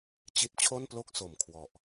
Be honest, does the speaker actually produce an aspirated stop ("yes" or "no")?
yes